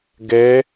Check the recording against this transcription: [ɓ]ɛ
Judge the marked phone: incorrect: ɡ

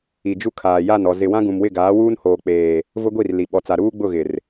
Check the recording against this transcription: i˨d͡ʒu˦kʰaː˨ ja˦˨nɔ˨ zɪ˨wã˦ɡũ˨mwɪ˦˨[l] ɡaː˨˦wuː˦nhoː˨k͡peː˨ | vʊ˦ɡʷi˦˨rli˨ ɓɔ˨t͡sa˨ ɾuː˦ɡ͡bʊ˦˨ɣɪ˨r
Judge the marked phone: incorrect: none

